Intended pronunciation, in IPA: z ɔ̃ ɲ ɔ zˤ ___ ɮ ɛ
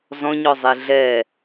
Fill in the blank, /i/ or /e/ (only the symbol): e